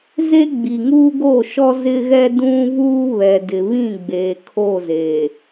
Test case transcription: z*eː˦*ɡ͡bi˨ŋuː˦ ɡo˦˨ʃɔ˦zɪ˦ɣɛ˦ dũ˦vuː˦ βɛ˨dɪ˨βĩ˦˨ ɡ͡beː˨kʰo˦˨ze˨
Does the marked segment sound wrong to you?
yes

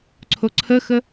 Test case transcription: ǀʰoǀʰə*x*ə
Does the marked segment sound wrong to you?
no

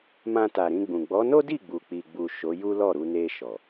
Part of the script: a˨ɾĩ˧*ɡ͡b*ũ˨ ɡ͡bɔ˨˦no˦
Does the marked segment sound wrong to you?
no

